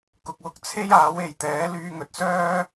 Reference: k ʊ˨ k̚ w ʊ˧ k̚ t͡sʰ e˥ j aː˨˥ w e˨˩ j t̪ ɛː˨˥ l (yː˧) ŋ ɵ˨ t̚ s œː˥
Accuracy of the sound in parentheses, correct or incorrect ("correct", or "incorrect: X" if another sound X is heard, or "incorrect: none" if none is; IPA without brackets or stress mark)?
correct